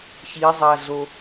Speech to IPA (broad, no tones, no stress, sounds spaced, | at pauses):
ç i zˤ a ɮ o